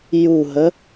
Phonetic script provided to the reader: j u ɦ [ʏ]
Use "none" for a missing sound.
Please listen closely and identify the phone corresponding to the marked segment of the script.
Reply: ə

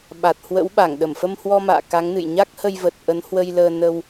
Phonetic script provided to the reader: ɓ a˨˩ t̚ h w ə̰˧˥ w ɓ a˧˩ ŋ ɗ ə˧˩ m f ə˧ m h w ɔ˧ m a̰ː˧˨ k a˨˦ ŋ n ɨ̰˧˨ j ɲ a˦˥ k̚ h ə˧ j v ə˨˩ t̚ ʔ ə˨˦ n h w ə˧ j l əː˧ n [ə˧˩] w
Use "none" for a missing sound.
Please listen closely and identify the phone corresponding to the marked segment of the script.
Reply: ə˧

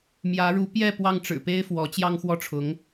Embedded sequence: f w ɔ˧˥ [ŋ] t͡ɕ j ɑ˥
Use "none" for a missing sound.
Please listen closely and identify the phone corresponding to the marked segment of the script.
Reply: none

